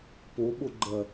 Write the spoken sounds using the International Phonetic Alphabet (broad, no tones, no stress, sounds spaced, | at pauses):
p o ɓ o ɡ͡ǃ ɐ